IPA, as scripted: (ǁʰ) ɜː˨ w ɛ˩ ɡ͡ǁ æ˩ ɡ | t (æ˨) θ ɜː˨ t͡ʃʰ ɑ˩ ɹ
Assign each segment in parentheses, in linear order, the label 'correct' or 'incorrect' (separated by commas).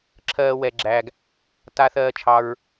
correct, incorrect